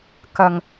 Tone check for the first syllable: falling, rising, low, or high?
low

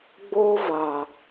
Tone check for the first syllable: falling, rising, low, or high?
high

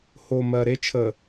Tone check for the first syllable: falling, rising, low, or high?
low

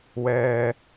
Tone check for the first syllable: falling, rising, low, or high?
low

